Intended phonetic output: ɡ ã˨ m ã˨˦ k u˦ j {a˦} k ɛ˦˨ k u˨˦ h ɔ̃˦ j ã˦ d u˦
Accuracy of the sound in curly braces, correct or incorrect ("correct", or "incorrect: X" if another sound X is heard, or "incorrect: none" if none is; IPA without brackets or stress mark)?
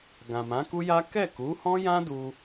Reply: correct